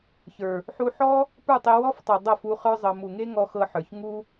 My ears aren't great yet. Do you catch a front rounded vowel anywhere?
no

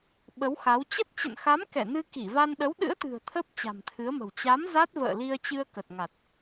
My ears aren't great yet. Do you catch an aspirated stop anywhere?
yes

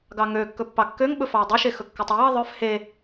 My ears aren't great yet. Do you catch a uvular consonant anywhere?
no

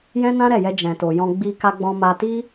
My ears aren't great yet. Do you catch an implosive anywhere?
no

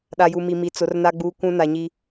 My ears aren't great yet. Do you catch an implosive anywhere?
yes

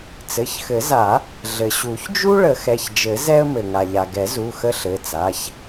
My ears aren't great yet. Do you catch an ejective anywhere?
no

